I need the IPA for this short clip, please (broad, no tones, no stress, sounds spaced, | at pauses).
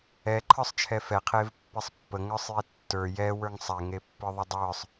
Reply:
ɛ ǃʰ ə˞ sˤ t͡ʃʰ ɛ f ɛ qʰ e v pː e sˤ pː ə ŋ ə˞ sˤ j e tː ə˞ j ɛ w ə˞ ŋ sˤ ɛ ŋ e pː ə˞ ðˤ e dˤ ə˞ sˤ